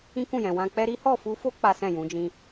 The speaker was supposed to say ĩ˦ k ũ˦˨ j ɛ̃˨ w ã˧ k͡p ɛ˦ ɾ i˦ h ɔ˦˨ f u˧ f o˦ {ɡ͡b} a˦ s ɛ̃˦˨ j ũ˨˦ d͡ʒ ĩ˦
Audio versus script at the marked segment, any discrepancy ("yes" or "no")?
yes